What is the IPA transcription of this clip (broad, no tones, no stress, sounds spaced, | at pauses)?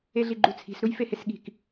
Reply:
e ɮ i ɡ͡ǃ u t͡sʰ i̤ s ɾ u j f e h e s ɠ i̤ k